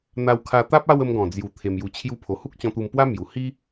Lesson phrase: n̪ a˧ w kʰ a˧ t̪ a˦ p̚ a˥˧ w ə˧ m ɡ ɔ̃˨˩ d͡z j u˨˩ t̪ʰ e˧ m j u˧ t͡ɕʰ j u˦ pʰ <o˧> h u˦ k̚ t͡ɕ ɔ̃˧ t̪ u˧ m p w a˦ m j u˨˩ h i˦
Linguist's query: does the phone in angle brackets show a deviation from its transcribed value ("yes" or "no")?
no